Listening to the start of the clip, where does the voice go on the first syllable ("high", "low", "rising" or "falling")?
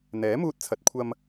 rising